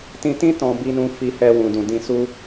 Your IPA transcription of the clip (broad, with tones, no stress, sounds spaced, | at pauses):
t ĩ˧ t ĩ˦ t ɔ̃˧ b i˧ n ũ˧ f i˧ h ɛ˧ w ũ˨ d ũ˨ d ĩ˧ s u˦